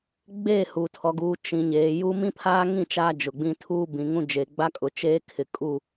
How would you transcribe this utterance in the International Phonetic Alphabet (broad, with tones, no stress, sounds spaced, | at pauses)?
ɡ͡b eː˦˨ h u˨ tʰ ɔ˨ ɡ uː˨ t͡ʃ ĩ˨ ɲ eː˨ j u˦ m ĩ˦ pʰ aː˦ ŋ ĩ˦˨ t͡ʃ aː˦ d͡ʒ ʊ˨ ɡ͡b ĩ˦ tʰ uː˦ b ĩ˨ ŋ ũ˦ d͡ʒ e˨ ɡ͡b a˦ kʼ ʊ˨ t͡ʃ eː˦ kʰ ɪ˨ kʼ u˦˨